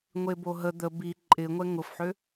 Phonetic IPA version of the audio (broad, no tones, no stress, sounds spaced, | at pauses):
ŋʷ e b o ɦ ə d̪ ə b i ǃʼ ɪ ŋʷ ɛ ŋ ʊ f ħ ø